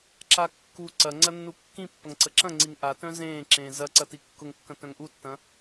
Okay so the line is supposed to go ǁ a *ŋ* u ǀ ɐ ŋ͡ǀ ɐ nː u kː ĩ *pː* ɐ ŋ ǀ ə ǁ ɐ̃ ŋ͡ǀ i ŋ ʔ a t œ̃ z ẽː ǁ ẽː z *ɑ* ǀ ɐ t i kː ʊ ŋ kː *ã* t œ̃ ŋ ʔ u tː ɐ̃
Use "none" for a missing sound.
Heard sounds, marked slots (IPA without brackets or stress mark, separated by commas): kː, pː, ɐ, ɐ̃